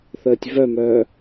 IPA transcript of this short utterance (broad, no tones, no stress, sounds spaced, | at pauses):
θ əː tʲ v œ m œː